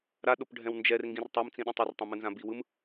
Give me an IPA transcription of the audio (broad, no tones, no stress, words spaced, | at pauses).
ɾaɗopɖʱɛ̃w nd͡ʒɛrŋɡĩr tˤamt͡sĩɗɛ̃tˤ ɯrtˤãmɯnzã biwɯm